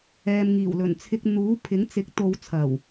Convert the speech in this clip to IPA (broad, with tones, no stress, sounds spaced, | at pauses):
ɛː˨ m ŋ iː˨˩ w l ɵ˨˩ n t͡sʰ ɪ˧ k̚ n̪ uː˨˥ pʰ ɪ˨˥ ŋ t͡s ɪ˨˥ k̚ t̪ o˨˧ w t͡sʰ ɐ˨˩ w